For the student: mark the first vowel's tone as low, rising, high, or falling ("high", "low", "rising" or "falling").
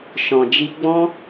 low